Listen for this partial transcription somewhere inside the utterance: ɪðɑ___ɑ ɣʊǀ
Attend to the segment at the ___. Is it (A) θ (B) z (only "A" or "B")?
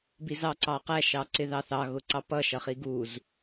A